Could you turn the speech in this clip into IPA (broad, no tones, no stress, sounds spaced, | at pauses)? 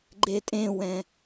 ɡ͡ǃ e tʼ ẽ w ɛ̃